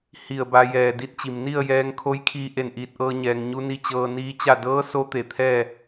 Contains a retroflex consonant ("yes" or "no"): no